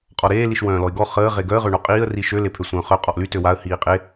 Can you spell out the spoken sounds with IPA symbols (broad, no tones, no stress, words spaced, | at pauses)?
qʼɔɾeː liʃwœ̃ːlɔɪ̯ɡɔ χəː ʁeɡœə̯ ʁøɳoqʼiːə̯ riʃø lepʰøsʷœ̃ːχœ qʼɔʔly tøwaə̯ hiːqʼe